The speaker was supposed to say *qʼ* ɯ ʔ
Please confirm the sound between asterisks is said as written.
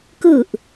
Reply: no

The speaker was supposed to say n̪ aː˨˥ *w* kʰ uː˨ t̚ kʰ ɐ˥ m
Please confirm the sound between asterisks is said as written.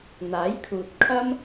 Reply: no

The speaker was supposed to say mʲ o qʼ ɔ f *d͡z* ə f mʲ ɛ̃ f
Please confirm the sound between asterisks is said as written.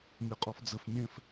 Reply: yes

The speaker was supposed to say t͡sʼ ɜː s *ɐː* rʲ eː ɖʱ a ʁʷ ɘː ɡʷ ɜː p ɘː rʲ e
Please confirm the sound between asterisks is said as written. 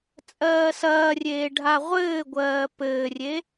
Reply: yes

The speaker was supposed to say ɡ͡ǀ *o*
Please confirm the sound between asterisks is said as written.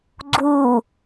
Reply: no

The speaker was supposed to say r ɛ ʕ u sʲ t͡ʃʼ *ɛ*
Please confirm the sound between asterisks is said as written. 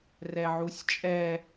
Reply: yes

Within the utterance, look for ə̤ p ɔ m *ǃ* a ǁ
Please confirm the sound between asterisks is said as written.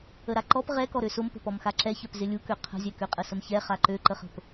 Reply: no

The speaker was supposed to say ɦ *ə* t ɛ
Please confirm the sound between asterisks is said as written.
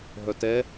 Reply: no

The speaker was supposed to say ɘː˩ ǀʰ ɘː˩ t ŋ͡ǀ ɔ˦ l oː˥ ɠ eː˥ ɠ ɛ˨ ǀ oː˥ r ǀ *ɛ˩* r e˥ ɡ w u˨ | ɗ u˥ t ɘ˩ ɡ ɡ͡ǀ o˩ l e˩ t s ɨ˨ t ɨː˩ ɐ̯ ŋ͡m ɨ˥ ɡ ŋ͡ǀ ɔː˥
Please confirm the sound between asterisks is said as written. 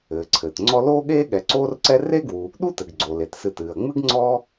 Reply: no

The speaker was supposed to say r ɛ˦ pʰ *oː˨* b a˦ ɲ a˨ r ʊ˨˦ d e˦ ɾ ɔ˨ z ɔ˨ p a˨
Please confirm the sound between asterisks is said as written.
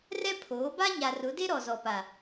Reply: no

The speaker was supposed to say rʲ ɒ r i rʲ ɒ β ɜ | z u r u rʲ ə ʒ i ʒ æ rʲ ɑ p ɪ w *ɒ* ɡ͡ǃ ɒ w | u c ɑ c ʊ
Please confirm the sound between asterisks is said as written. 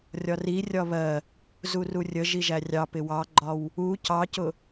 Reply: no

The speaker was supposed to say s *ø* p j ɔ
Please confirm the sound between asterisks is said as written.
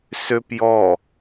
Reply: yes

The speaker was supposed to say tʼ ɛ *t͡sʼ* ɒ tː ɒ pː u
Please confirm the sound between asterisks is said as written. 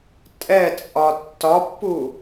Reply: yes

